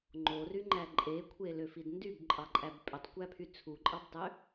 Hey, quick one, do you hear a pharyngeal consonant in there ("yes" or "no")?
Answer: no